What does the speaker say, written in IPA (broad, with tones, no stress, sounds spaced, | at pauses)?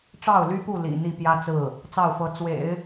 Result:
ʈ͡ʂ ɑ˥˩ ʊ̯ l y˥ p u˥˩ l ḭ˨˩ n̪ i˥˩ p j ä˥ t͡s ɹ̩˥˩ | t͡s ɑ˥˩ ʊ̯ f ɤ˧˥ t͡s w ḛ˨˩˦ ɪ̯